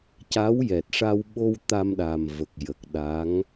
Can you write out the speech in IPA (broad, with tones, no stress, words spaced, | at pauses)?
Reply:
ca˧˥w jɛ˨˩t̚ʂa˧w ɓo˧w t̪a˧mɗa˨˩m və˨˩k̚jə˨˩k̚ɗa˧˥ŋ